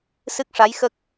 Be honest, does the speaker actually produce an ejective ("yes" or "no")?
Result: no